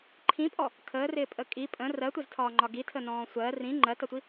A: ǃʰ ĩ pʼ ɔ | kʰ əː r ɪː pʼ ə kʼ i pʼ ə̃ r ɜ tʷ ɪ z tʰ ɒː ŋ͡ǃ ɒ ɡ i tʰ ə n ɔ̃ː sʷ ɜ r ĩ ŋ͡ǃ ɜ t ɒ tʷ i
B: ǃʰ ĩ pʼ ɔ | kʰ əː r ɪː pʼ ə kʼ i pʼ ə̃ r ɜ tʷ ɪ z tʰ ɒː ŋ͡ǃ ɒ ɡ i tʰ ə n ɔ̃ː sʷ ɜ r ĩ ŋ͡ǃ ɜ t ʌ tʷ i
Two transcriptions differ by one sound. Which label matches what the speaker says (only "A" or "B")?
B